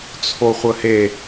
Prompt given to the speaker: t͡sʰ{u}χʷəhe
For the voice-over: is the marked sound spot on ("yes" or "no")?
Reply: no